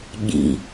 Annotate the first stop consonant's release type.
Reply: implosive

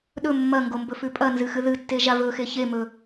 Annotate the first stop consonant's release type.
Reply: implosive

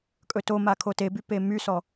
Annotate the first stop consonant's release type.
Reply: ejective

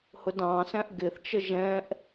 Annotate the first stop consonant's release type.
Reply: plain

